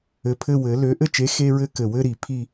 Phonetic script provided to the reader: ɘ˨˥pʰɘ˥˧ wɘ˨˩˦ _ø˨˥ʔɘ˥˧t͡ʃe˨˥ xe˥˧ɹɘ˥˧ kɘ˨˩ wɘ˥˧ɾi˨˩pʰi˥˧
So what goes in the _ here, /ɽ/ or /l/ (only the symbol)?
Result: l